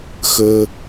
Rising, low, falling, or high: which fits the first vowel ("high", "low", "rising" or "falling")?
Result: high